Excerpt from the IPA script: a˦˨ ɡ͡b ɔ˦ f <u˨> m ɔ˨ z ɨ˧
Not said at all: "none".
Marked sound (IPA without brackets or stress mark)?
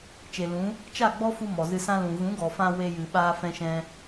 u˧